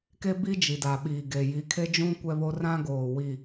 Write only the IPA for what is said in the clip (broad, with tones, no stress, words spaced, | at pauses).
ke˦bi˦ d͡ʒi˨da˨ɓiː˨ɡe˨ ji˨˦kʰe˦d͡ʒũ˦ kʷɛ˦βo˦ rã˦ɡoː˨ wi˨